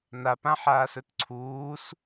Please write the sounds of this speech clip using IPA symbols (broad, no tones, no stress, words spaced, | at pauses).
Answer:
nap ãħaːsɵtǀʰuːs